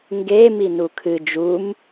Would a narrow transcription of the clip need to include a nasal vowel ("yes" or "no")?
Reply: no